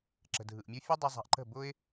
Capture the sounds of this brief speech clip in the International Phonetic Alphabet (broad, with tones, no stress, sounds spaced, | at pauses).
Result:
ǁ ə̤˨ dʱ ɯ˨ ʔ mʲ u˧ fʲ ɯ˦ dˤ ɨ˧ zˤ a̤˧ ʔ ǃ ə̤˦˨ b ʊ˦ ɪ̯